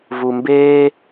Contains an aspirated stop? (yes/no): no